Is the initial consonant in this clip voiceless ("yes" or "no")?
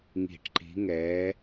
no